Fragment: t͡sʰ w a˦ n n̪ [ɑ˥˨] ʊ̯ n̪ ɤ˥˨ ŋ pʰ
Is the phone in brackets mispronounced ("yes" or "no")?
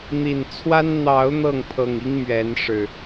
yes